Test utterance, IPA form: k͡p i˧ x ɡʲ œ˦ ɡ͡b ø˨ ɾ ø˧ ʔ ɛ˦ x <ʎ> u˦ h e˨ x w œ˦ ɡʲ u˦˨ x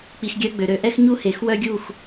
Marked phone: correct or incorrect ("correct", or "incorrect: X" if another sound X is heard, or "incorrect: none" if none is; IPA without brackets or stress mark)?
incorrect: ɲ